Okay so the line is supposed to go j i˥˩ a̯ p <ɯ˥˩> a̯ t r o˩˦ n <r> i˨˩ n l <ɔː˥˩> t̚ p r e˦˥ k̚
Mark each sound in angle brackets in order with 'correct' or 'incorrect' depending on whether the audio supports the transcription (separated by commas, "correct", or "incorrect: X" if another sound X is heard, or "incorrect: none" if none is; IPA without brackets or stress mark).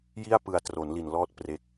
incorrect: ɯ˨˩, incorrect: l, correct